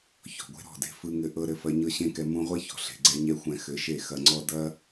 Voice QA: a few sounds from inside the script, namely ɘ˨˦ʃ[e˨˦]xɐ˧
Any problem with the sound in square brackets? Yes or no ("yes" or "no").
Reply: yes